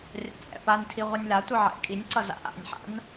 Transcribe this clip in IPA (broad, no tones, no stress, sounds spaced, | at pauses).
rʲ a̰ t͡sʼ ɛ̰ p a n tʰ i ʁʷ ʌ nʲ l a tʷ ɯ ʕ ɛ̰ kʼ i nʲ ǀ ʌ z a̰ ʔ a̰ nʲ ħ a̰ n